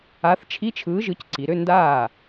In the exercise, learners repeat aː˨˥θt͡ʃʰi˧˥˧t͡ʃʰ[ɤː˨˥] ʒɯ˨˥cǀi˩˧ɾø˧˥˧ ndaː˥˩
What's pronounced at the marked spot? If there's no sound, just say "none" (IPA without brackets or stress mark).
ɯː˨˥